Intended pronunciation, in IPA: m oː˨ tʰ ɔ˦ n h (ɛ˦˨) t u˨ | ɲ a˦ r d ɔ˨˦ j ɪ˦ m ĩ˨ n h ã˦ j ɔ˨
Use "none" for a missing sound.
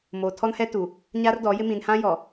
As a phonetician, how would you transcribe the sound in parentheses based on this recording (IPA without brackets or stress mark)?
ɛ˦